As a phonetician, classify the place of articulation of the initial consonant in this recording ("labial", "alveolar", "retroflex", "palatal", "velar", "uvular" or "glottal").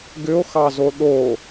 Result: velar